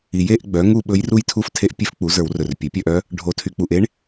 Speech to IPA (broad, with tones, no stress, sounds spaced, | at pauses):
i˨ j e˥˨ ʔ ɡ͡b œ˩˥ ŋ u˥˨ ɓ ɵ˧˥ j r u˥˨ j tʰ u˥˨ f tʰ e˧˥ ʔ pʲ e˧˥ f k͡p u˩˥ z ə˞˨˩˦ w r ɵ˨ r pʲ ɵ˩˥ pʲ œ˥˨ ʔ œ˧˥ | ɖʱ o˨˩˦ tʰ y˨ k͡p u˨ ʔ e˧˥ ɳ